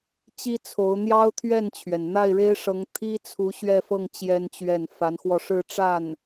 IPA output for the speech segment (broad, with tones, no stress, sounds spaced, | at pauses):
t͡ɕ i˥ t͡sʰ o˧˥ ʊ̯ n̪ j ɑ˥ ʊ̯ t̪ʰ ɥ ɛ˥˩ n t͡ɕʰ ɥ ɛ˩ n n̪ a˥˩ ɪ̯ ɻ e˥ ɪ̯ ʂ ɤ˧˥ ŋ t̪ʰ i˥ t͡sʰ u˧˥ ɕ ɥ ɛ˥˧ f ɤ˥˩ ŋ t͡ɕ j ɛ˥ n t͡ɕ ɥ ɛ˥˩ n f a˧˥ n x w ɔ˧ ʂ ɻ̩˥˧ ʈ͡ʂ a˥˩ n